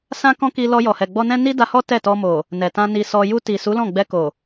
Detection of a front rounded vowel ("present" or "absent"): absent